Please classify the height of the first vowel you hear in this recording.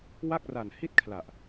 low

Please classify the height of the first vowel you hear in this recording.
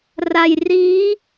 low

